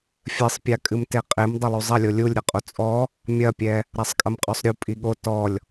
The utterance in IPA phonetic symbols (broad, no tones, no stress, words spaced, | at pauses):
fʲɘsˤpʲakʼɨm teqʼem dˤɐlˠuzˤɐlʲo lʲulʲɾʲɐqʼo t͡sʼɔ | mʲɐpʲɛ | ɾasˤkʼɐmqʼɔsˤɾʲu pʼiɠo tɔlʲ